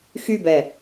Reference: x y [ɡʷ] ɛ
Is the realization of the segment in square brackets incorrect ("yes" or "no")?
yes